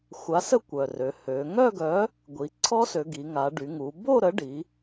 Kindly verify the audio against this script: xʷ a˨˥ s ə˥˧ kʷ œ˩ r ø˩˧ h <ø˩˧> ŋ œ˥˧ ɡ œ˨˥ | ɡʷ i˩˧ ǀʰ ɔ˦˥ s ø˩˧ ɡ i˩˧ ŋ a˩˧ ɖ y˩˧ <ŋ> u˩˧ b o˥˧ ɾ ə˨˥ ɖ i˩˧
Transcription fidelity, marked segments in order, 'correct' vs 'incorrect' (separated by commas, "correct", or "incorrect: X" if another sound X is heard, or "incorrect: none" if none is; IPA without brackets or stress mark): correct, correct